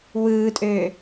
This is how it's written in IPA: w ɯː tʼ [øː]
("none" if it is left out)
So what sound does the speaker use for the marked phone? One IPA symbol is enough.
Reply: øː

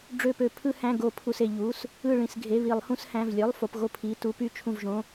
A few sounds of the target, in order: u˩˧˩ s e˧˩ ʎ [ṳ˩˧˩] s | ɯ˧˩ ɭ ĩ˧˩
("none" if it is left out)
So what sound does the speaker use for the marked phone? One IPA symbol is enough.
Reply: u˩˧˩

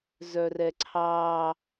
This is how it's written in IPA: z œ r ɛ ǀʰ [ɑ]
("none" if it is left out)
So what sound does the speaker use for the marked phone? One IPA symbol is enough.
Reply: ɑ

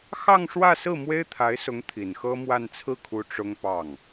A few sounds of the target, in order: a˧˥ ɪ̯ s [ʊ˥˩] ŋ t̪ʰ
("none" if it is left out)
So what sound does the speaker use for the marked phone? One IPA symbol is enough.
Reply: ʊ˧˥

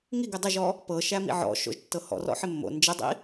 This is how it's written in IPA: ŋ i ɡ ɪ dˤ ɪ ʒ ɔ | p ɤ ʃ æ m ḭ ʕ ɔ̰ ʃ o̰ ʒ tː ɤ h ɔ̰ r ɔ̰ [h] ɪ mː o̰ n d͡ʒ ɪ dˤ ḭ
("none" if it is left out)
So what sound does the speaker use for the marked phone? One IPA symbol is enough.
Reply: ħ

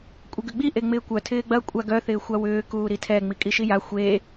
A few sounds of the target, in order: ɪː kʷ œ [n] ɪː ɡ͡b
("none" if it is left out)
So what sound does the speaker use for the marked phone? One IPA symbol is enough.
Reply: tʰ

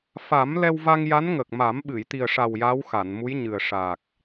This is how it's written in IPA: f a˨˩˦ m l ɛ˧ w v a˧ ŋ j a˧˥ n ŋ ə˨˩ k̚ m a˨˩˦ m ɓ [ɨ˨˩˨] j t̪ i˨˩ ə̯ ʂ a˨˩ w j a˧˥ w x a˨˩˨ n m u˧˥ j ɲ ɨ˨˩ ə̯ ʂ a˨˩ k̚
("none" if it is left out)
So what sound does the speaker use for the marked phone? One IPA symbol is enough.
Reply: ɨ˨˩˨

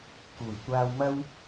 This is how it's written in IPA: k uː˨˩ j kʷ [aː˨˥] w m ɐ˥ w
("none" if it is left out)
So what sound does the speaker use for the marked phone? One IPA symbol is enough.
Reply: aː˧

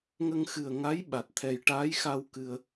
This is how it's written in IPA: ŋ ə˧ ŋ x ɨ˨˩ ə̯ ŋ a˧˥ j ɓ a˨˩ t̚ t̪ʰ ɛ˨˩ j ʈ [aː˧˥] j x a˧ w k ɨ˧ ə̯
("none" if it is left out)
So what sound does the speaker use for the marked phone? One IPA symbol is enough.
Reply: aː˧˥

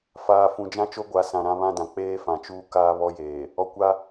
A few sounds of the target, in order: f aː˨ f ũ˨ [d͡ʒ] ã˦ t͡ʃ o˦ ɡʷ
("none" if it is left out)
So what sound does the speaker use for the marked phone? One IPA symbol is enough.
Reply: d͡ʒ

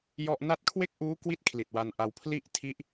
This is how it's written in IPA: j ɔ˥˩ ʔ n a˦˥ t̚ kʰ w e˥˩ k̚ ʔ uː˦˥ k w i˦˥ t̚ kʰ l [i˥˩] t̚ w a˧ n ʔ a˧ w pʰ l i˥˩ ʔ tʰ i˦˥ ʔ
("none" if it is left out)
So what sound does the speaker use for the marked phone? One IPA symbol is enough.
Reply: i˨˩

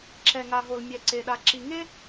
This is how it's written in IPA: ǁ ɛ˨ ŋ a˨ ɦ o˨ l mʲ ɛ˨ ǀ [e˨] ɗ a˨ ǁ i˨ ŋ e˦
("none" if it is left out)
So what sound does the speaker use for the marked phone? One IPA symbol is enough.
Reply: e˨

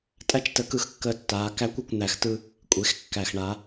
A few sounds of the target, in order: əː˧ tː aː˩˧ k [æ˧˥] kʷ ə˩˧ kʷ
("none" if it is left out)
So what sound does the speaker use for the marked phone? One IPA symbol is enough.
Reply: æ˧˥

